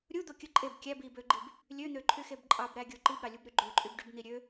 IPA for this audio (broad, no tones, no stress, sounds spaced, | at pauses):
ɾʲ u d̪ o kʲ ɯ ǃʼ e b kʲ æ b i b ø ɡ͡ǃ i b | lʲ ø n̪ ø ǃʰ y x e b ǃʼ ɑ b ɾ æ ɡʲ o ǃ i b ɾ ɑ lʲ u b ɾ y ɡ͡ǃ ø ǃʼ y b ɖ y b n̪ i ɾʲ ø